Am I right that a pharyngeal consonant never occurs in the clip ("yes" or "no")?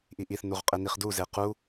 yes